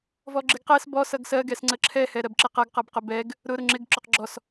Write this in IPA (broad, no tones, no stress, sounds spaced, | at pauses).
v ɔ ɡ͡ǁ ɪ ɡ q ɛ s b ɔ s ʌ ɡ s ɜ ɡ ɛ s ŋ͡ǀ ə ǁʰ ɛ h ɛ ɾ ɜ b ǁ ɪ q ʌ ɡ q ʌ b q ʊ b ɛ ɡ | ɾ ʊ ɾ ʊ ŋ͡ǁ ɪ ɡ ǁ ʊ q ɡ͡ǁ ɔ s